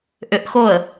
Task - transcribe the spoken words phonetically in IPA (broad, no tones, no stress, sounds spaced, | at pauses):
ʔ ʏ ʔ x o ə̯